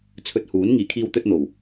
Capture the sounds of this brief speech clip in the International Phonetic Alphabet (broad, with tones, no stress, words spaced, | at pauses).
t͡sʰɵ˧t̚huː˨˥n ŋiː˨˩kʰiː˧wt̪ɵ˧t̚n̪o˨˩w